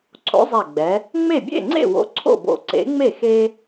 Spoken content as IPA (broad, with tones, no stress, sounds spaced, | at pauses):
ǀʰ o̰˨˥ zˤ ɛ˧˩ ɡ͡b ɛ˩˧ | ŋ͡m e˥˩ bʲ ḛ˥˩ ŋ͡ǀ ḛ˥˩ w o̰˨˥ ǀʰ o̰˥˩ b o̰˧˩ ǀ ḛ˨˥ ŋ͡m e˥˩ x e˦